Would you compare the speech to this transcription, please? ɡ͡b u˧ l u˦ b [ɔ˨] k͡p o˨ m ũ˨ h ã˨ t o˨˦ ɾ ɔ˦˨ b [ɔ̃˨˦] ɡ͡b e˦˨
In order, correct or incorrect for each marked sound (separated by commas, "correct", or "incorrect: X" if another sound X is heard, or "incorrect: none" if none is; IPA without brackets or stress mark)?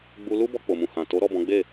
incorrect: ɔ˧, correct